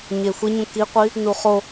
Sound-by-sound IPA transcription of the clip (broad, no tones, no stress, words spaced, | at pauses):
ɲexʷiɲũ kiqʷi | nuχo